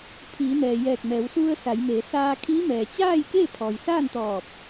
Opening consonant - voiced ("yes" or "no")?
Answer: no